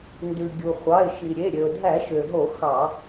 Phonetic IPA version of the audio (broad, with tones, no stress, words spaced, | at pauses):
ndʉ˩ɡʲu˩ χʷɑ˩˧˩ɪ̯ʃi˩ ɾʲe˩˧˩ ɾʲø˩ʊ̯dʱæ˧˩˧ʃø˩ɦo˧˩˧ xɑ˧˩˧